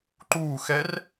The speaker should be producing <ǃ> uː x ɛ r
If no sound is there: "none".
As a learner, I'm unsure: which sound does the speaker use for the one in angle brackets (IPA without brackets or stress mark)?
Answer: ǃ